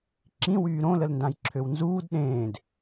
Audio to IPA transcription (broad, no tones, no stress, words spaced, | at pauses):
ǁĩ wyːɾõ ləlndãjǁʰøwnzuːd ɗẽːd